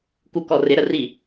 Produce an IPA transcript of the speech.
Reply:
kukɔrɪ ɾəri

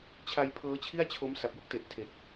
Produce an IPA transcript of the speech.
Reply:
t͡ɕʰa˧j pʰɤː˦˥t͡ɕʰi˥˩a̯t͡ɕʰo˦˥m sa˨˩p̚ju˥˩k̚te˨˩ʔ tʰe˨˩k̚

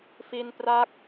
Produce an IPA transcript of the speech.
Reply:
fi˧npra˦˥k̚

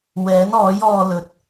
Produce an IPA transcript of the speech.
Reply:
wɛː˨˥nɔː˨˥j ɔː˧ lɵ˨˥t̚

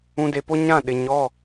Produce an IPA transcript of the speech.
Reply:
ũ˨de˨po˦ ɲã˦˨ɗɪ˨ɲɔ˦˨

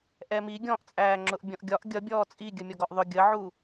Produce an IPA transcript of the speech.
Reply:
ʔɛmi ɡʲɔ̃ʔt͡sʼæːŋ͡ǁʊʔ bʲɔ̃ʔɡʲɒʔ ɡʲʌbʲɔː t͡sʼi ɡʲəmʲɔɡɔʔðˤʊ ɡʲəʕu

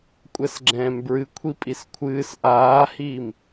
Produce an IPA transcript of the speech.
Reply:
kʷʼɛsɡ͡ǁɛ̃ːmbɹɨkʷʰi pʼiskʷʰɨːs ʔaːhiːm

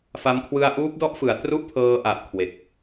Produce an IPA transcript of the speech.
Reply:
fa˧m kʰwɯ˧a̯ʔuː˦˥p̚dɔ˦˥ʔfɯ˩˦a̯ tru˥˩ʔpʰɤː˧ʔa˨˩ʔ kʰwe˨˩k̚

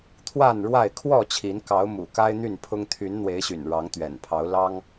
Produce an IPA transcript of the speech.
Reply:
t̪ʰwa˥˨nɻwa˥˨ɪ̯ kʰwɔ˥˨t͡ɕʰi˨˦n kɑ˨˦ʊ̯ mṵ˨˩ka˦ɪ̯ n̪y˥˨npʰʊ˦ŋ t̪ʰy˨˦nn̪we˨˦ɪ̯ ɕy̰˨˩nɻɑ˨˦ŋt̪ɥɛ̰˨˩npʰɑ˨˦ʊ̯ lɑ˦ŋ

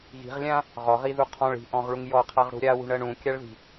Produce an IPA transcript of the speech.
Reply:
ɣi̤ʁlʲã | ʁɔʁiðu qʰɔ̃ɭ i̤ʔɔ̃ʁɭuŋ jɔqʰaʁɽṳ ɾʲawṳɳɜɳ ũkʲaɭði̤

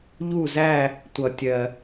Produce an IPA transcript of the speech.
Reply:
ʎu˥˧zæ˥˧ | tʷʌ˧tʲɜ˧

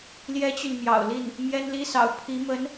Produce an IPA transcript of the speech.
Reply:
ljɛ˥t͡ɕy˨n mjɑ̰˨˩ʊ̯li˥˩n | mjɛ˥nli˥sɑ̰˨˩ʊ̯ pʰi˧˥ mə˧˥n

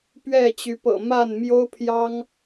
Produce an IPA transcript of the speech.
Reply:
pɥɛ˥˨t͡ɕy˨˦pɤ̰˨˩ ma˥˨n mjo˦ʊ̯pʰjɑ˦ŋ

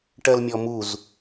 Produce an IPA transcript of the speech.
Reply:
ʈɜlmʲɔmuz

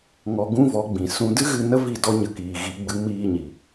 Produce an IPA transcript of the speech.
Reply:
ŋɔ˧ ɡũ˦vɔ˨˦ɡ͡bĩ˨ sũ˧ dɨ˦ɣɨ˧ nə˦vi˦˨ dɔ˦ɲə˧kiː˨ɣi˨˦ ɡ͡bɨ˨˦miː˧ɲi˨

